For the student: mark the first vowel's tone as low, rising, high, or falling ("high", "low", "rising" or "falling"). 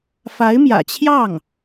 rising